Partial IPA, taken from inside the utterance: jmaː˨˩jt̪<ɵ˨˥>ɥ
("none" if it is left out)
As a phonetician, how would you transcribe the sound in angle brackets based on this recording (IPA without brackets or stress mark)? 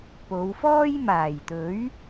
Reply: ɵ˨˥